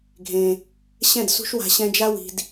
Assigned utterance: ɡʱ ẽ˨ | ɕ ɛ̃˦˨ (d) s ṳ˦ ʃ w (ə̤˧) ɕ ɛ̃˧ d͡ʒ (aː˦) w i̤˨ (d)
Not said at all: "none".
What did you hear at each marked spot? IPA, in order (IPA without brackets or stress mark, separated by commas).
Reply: d, a̤˧, a˦, d